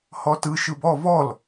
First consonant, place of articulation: glottal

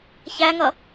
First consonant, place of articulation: palatal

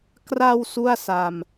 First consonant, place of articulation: velar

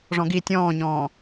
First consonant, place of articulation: retroflex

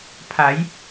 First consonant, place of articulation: labial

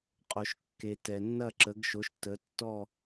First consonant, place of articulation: uvular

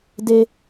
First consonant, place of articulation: alveolar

